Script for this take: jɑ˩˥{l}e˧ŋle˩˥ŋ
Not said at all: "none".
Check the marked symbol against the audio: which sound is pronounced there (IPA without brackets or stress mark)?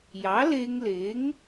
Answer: l